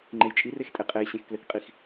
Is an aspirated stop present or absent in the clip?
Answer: absent